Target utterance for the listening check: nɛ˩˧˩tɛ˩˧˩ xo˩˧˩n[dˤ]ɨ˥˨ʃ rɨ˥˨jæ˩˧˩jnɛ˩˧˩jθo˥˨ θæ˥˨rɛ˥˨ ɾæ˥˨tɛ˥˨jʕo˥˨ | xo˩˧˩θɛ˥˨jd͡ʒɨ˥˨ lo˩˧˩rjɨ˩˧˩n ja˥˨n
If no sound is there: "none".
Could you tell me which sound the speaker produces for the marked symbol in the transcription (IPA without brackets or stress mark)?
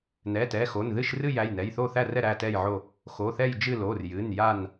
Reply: ð